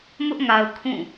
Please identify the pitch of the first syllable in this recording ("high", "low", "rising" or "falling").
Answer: high